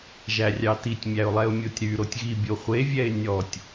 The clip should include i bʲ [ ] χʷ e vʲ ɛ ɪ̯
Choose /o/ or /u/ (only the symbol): o